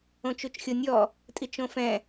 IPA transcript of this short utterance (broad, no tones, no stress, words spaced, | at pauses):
õt͡ʃut͡ʃxʲonʲɔ | tʼit͡ʃõfɛ̃